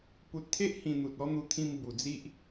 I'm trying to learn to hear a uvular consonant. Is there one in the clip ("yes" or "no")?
no